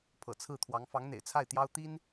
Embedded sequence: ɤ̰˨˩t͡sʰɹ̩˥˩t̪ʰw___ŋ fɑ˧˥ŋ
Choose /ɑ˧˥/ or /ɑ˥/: ɑ˧˥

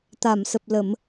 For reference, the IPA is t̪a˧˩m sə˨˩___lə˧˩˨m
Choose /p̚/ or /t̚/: p̚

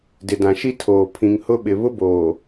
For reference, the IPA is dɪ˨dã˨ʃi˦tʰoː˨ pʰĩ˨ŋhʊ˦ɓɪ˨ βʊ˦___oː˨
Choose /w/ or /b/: b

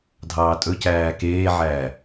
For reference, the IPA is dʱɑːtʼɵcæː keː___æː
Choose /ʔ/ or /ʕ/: ʕ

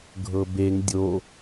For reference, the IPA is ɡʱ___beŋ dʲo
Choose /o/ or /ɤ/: ɤ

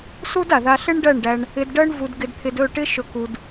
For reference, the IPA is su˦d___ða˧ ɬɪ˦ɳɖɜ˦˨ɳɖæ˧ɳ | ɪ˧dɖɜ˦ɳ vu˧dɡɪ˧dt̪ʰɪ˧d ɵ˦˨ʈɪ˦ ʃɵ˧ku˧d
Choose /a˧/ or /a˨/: a˨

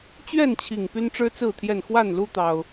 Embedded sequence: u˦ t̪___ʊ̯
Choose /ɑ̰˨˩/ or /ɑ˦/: ɑ˦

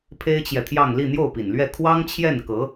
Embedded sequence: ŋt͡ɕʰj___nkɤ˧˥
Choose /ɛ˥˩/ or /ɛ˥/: ɛ˥˩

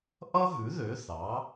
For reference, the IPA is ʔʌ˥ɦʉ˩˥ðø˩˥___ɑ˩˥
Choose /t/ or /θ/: θ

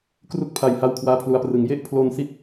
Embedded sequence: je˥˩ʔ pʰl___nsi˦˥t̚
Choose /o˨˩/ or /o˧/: o˧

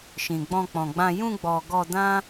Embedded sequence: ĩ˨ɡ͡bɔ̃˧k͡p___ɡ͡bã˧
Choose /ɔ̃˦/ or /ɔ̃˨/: ɔ̃˨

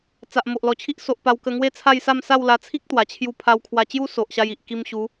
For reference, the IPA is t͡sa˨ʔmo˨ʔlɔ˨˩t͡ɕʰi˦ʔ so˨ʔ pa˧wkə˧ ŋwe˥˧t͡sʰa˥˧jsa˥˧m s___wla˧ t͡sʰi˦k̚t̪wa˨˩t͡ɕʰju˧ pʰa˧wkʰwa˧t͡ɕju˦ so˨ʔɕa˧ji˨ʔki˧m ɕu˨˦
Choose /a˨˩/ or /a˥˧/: a˥˧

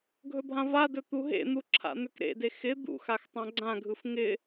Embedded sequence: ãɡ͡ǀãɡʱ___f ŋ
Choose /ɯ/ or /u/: ɯ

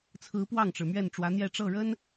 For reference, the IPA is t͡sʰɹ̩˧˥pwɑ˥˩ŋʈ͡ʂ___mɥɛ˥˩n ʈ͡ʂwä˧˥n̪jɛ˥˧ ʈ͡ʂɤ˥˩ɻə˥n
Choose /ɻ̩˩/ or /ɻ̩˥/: ɻ̩˩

